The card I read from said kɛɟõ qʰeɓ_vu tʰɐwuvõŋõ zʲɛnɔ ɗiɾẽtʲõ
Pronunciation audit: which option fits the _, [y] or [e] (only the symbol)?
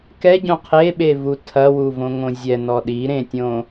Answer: e